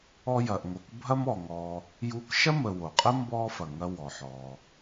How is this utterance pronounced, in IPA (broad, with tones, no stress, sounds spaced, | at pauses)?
ɔ˦ j ɐ˨ ʔ ŋ o˨ k bʱ ɐ˥ m ɔ˩ ŋ ɔː˨ | j u˦ k ʃ ɐ˥ m ə˨ w o˩ qʼ ə˥ m b ɔː˥ f ɐ˩ ŋ ɐ˦ w ɔ˩ ħ ɔː˩